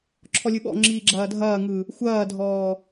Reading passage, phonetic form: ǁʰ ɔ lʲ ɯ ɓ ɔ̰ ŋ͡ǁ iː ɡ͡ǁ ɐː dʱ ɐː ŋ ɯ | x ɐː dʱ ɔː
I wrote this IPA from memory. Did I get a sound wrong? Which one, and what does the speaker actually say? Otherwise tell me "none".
x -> xʷ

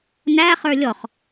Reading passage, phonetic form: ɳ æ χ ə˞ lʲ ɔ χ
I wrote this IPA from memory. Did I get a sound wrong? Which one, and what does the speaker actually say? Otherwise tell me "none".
ɳ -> n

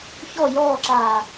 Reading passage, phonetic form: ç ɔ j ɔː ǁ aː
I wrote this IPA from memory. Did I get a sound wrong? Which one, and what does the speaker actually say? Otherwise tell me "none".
none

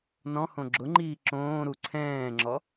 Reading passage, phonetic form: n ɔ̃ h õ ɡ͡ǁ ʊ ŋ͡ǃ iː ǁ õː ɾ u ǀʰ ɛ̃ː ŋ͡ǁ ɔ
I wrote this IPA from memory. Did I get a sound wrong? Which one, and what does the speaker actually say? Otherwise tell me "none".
none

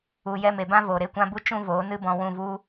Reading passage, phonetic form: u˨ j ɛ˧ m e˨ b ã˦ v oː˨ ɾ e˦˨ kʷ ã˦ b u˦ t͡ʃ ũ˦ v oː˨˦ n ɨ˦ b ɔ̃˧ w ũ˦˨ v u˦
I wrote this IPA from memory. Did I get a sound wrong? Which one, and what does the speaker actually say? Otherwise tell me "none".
none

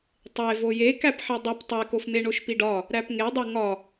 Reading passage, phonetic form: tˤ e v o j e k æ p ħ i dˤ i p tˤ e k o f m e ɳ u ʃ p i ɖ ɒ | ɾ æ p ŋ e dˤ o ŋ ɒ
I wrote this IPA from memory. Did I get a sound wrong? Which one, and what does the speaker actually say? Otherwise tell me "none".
u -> o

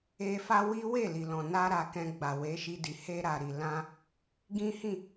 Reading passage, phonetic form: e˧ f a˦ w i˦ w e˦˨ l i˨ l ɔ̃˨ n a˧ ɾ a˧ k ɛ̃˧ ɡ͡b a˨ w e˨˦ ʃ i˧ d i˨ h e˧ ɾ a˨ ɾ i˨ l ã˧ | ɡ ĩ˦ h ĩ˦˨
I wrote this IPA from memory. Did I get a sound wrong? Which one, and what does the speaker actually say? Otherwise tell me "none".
none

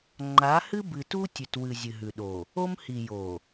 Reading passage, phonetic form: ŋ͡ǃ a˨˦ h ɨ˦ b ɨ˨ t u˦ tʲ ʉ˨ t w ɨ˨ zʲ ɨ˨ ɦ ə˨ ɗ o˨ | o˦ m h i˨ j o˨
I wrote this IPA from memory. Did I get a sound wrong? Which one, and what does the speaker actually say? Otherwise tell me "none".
ə˨ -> ʉ˨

